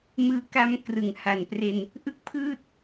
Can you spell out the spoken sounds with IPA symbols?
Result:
m ɯː˧ k a˦˥ m k r ɯ˩˦ ŋ h a˨˩ n p r e˧ n | ʔ ɯ˦˥ k̚ pʰ ɯː˥˩ t̚

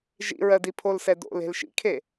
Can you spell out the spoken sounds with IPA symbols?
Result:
ʒ ḭ ɹ ɜ d i pʰ o l s ɛ d o̰ l e̤ l ʃ ḭ kʰ e

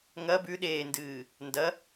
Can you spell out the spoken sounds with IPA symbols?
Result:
ŋ ɐ b ʉ ɗ eː n d ɨː | n d ɐ

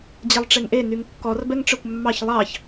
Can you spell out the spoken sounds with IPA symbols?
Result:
d͡ʑ e lˠ ʈ͡ʂ e ŋ ʔ e n y ŋ kː ɔ r b ɛ ŋ ʈ͡ʂ œ kʷ mː ɑ ç lˠ ɑ ç

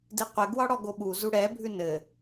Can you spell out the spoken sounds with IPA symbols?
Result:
d i qʷ ɘ ɡ w ɒ ɽ ɔ ɡ o ɓ u z u ɽ ɛ bʱ ʉ n ɘ

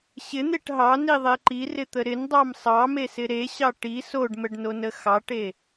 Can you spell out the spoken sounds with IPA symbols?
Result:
ɕ ɪ n̪ e ʈ ɦ ɑ n i ðˤ e ǃ i r ɪ t̪ ə ɾ ɪ n dˤ ɑ m sˤ ɑ m e s ɪ ɾ e ɕ ɑ ʈ i s o ɖ m ə ɖ n o n ə x ɑ ʈ e

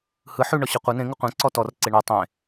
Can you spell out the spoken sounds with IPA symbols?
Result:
h ɯ ħ ʉ ɳ ɔ ɕ ɯ qʷ ɯ n ẽ ŋ ɯ qʷ ẽ ǀ ɔ t ɔ r ǀ e ɳ ɯ tˤ ẽ

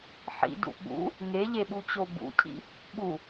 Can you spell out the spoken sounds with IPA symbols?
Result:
ħ ḭ d ṵ ɓ ṵ | ŋ e ʎ e ɓ u t͡ɕ o b ṵ cʰ ḭ | ɓ u

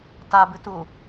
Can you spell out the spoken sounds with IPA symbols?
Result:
t a b ɨ t u

